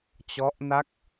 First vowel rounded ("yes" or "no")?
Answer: yes